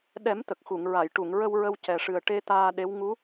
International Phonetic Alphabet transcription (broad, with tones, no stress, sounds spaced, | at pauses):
ɗ ɛ˨˩˦ m t̪ ə˨˩ k̚ x u˨˩˨ ŋ ɹ a˨˩˨ j ʈ u˨˩˨ ŋ ɹ ə˧ w ɹ ə˧ w c ɛ˨˩ ʂ ɨ˨˩ ə̯ ʈ e˧ t̪ aː˧ ɗ e˧˥ w ŋ u˧˥